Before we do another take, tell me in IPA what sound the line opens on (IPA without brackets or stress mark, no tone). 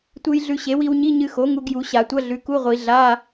tʷ